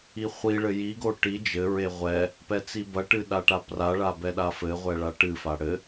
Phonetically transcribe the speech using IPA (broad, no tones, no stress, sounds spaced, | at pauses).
i χʷ i ɭ ɘ j i ɡ o ʈ i d͡ʒ ɘ ɹ e ʁʷ ɛ | p ɛ t͡s i b ɐ ʈ ɨ ɗ a ʈ a p r a ɭ a b ɛ ɗ a f ɘ ʁʷ ɛ ɭ a ʈ ɨ f a ɽ ɘ